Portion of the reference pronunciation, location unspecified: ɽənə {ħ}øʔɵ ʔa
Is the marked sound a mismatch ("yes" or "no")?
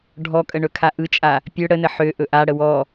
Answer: no